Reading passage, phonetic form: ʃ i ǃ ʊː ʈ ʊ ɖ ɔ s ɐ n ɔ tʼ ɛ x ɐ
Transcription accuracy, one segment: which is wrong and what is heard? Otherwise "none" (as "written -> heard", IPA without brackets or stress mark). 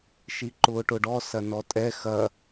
none